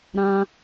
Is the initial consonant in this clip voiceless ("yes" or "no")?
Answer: no